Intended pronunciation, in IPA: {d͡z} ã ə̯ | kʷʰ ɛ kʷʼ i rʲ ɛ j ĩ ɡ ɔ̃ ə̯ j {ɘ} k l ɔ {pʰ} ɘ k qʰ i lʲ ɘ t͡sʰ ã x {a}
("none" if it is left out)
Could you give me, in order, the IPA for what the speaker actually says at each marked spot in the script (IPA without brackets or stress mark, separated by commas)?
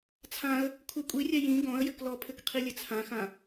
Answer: t͡sʰ, ɘ, pʰ, ã